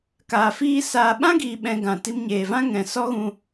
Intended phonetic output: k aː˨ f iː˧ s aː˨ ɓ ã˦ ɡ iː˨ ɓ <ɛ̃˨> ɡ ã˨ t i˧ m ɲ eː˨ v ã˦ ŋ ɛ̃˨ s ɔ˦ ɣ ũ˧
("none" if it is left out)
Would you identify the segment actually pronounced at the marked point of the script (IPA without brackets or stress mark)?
ɛ̃˨